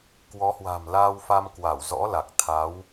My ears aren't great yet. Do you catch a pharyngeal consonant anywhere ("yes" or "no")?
no